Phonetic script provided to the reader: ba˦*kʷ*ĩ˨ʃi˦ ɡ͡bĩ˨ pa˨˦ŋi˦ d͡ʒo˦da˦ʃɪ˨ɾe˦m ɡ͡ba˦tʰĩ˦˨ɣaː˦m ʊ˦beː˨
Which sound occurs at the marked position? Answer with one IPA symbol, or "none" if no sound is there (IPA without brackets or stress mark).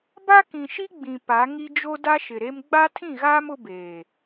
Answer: k